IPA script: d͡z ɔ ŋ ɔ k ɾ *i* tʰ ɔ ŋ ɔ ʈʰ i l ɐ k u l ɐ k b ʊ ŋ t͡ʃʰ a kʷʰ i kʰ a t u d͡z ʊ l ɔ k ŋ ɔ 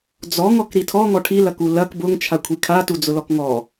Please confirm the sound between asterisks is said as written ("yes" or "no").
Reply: yes